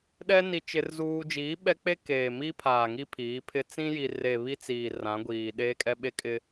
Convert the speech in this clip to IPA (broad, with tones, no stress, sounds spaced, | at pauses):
ɗ ɛ˦ n i˦ t͡ʃ ɪ˦ r z uː˦ d͡ʒ iː˨˦ ɓ ɛ˦ k͡p e˦ k eː˨ m i˦ pʰ aː˨ ŋ i˦ pʰ iː˨˦ pʰ ɪ˦ t͡s ĩ˦ j i˨ r e˨ β i˦ t͡s iː˨ r ã˨˦ ɡʷ iː˨ ɗ eː˦ kʼ ɛ˦ ɓ e˦ kʼ ɪ˦